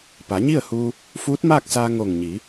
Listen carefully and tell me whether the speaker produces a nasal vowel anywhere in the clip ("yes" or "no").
no